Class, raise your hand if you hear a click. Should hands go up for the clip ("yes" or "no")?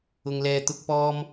no